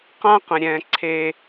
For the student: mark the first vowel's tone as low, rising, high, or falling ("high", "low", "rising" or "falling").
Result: high